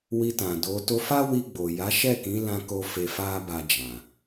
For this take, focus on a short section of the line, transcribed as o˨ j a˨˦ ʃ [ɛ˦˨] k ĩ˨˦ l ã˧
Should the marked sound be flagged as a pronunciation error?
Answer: no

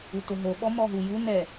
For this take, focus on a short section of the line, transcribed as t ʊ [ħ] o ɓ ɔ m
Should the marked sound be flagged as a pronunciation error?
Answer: yes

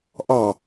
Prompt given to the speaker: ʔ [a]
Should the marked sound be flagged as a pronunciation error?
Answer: yes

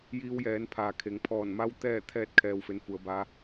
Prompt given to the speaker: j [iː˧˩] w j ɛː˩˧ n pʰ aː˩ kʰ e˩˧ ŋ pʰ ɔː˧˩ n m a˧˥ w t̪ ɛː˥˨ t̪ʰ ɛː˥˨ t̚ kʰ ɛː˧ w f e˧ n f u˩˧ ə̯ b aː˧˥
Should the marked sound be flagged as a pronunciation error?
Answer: yes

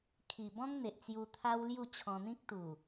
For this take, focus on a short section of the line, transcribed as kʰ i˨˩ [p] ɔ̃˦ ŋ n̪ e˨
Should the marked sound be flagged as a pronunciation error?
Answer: yes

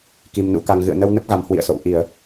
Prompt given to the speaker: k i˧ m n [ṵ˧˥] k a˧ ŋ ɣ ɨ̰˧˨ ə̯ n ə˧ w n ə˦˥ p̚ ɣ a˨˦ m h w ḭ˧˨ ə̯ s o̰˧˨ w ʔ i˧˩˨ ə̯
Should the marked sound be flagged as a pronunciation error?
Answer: no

